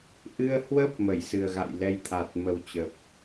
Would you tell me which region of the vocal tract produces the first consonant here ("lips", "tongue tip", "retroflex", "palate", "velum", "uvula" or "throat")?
throat